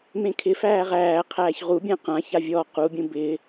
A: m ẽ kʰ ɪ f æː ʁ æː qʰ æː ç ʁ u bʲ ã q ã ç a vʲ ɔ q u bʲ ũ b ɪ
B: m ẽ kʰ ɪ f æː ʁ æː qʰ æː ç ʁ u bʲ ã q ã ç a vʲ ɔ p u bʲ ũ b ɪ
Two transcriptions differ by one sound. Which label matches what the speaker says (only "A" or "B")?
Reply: A